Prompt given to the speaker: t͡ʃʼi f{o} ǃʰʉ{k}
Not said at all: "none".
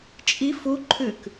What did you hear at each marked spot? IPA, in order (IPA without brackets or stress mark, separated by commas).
u, k